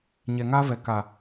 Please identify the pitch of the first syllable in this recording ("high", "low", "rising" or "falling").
low